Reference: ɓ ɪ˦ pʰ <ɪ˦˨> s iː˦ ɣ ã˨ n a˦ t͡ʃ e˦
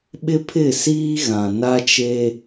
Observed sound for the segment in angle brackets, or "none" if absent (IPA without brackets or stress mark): ɪ˦˨